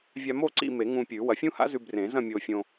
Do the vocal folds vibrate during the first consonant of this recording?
yes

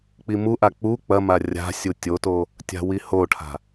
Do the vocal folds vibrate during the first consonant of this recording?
no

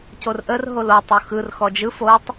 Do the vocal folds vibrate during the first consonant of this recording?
no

